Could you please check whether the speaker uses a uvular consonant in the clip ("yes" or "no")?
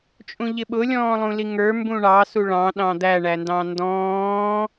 no